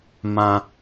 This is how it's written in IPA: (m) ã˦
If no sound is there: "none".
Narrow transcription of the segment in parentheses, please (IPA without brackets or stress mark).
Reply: m